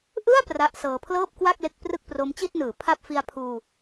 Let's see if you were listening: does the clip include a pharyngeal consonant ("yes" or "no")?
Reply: no